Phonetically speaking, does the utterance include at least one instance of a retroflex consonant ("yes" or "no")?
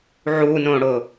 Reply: yes